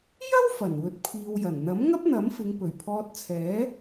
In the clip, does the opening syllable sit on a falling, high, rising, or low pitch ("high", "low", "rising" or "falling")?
high